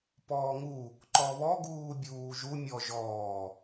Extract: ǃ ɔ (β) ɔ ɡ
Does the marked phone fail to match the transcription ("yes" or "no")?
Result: no